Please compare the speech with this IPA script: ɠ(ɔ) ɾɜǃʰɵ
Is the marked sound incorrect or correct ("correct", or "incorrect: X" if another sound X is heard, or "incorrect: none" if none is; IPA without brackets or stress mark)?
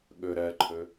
incorrect: ɵ